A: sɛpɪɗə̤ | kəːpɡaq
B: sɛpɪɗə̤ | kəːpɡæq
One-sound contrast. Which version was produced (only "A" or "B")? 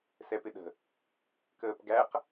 B